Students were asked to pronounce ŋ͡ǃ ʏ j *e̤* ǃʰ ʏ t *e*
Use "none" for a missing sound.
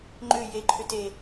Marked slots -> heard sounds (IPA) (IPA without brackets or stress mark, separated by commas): e, e